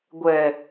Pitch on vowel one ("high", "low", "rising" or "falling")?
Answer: low